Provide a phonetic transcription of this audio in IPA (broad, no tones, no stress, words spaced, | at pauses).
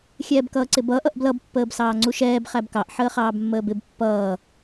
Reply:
xʲɛːbkʌːǀɪbʌːʔ ʌʔblʌb pːəːbsɑːŋ͡ǀuʃɛːb χæbkɑʔ ħəːχɑːbmːəːbɪb pːʌː